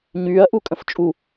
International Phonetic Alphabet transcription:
ɲ yː ɐ̯ ʔ u kʼ ə̃ f t͡ʃʼ u

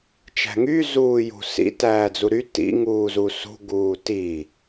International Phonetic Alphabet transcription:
t͡ʃ æ̤ ŋ y z uː j ṳ s ḭ t æː d͡z u ɾ y t ḭ ŋ uː z u s ṳ ɡ uː t i

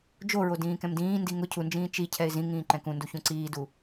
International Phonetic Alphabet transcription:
d͡ʒ o ɹ o d ĩː k ɛ̃ m d ĩː n d i ŋ ʊ cʰ u n d͡ʒ ĩː t͡ʃ i cʰ ɛ ɪ̯ z ĩ ŋ ĩː ǃ ɛ̃ k ũ n d u ç ũ ǀ iː d u

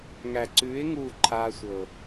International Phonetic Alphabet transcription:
ŋ æ˨ ǀ ʉː˨˦ ɪ̯ ŋ uː˦˨ ǃʰ aː˧ sʷ ɤ˨

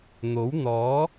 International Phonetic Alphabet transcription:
n̪ o˨˥ w n̪ ɔː˨˥

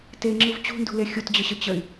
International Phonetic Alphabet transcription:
t e ŋ͡ǁ ɯ v t͡ɕ ṳ n d ṳ l e xʲ u t d͡ʑ ə ɕ ə t͡ɕ ə y̯

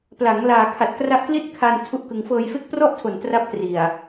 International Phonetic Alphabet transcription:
p l a˩˦ ŋ l aː˨˩ kʰ a˨˩ t̚ k r a˦˥ ʔ k l i˥˩ t̚ kʰ a˧ n tʰ u˦˥ ʔ k ɯ˧ ŋ f ɤː˧ j f e˦˥ k̚ p r ɔ˥˩ ʔ tʰ o˨˩ n t r a˦˥ p̚ t r i˨˩ a̯

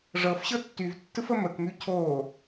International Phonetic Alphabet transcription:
ʐ ɤ f ɕ ɤ tː y v tː ɯ f ə m ə k m y cʰ o

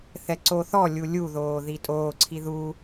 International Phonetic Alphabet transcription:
θ ɛ ǀ o θ ɔ lʲ u lʲ u ð oː ð i tʼ oː ǀʰ i ð u

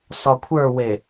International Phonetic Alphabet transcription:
s ɒ kʷʰ ə˞ w e

